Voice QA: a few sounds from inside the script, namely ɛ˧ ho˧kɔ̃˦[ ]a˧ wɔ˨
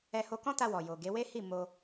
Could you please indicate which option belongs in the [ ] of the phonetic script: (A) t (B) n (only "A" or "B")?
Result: A